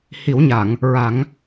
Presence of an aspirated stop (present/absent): absent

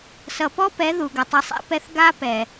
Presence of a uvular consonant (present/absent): absent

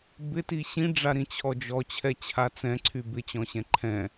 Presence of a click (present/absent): present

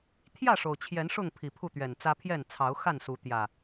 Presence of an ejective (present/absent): absent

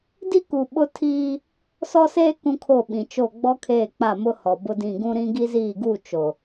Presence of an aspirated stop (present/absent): present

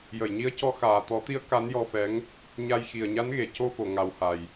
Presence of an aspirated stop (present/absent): absent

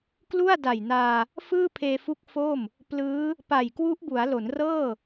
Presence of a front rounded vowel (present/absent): absent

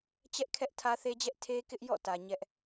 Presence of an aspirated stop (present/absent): present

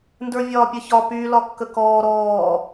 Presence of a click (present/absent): absent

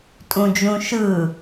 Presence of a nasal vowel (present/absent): present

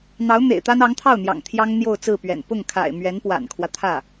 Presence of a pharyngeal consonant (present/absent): absent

